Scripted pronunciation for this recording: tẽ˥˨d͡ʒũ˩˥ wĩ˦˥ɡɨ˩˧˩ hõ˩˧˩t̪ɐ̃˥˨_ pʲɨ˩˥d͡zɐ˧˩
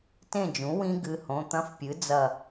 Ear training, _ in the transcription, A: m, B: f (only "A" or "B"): B